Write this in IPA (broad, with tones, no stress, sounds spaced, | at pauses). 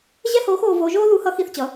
ʑ ɛ˥ h oː˧˥ x oː˧ v oː˧ ʒ oː˥ ð u˧˥ h ʌ˧˥ x i˧ θ t͡ɕ ʌ˩˧